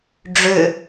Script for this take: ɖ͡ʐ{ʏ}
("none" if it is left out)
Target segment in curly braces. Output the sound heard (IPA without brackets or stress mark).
ʏ